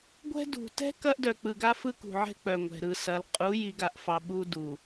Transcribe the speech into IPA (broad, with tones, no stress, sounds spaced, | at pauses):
ɡʷ ɛ̤˦ d ṳ˨ t ɛ̤˦ k ɐ˦ ʔ d œ˨ k͡p ɯ˨ ɡ a˦ f ɯ˦ k ṳ˨ ʕ ɛ̤˦ k͡p œ˨ ŋʷ ɛ̤˨ ɾ ɯ˨ s ɐ˨˦ l qʼ u˨˦ j i˨˦ ɡ a˨ ʔ f ɑ˨ ɓ u˦ d u˨